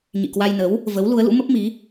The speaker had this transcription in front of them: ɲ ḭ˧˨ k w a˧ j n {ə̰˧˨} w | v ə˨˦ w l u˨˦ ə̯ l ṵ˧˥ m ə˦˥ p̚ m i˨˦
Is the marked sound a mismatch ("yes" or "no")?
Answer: yes